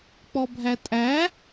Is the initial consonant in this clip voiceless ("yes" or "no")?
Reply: yes